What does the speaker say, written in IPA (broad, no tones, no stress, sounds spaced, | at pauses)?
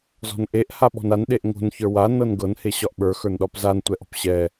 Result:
z ɔ̤ n ʔ e ʔ h a ɓ ɔ̤ n a n ɗ e ʔ ŋ o̤ n ç ə˞ w a n ɤ n ɡ ɤ n h e ɕ ɒ ʔ ɓ ə˞ x ə˞ n ɗ ɒ p z a n tʷ ɛ ʔ ɔ̤ p ɕ ɛ